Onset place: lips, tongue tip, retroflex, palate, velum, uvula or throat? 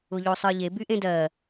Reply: palate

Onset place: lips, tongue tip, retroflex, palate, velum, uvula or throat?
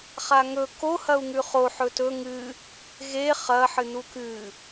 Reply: uvula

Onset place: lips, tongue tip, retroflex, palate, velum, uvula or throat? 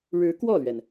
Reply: retroflex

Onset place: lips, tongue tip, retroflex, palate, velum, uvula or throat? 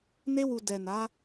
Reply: tongue tip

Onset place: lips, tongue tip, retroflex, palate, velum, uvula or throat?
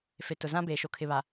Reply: lips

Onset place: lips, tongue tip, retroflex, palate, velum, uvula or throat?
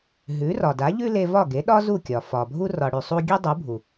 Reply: throat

